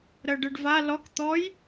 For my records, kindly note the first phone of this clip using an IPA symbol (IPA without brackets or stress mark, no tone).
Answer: ɾ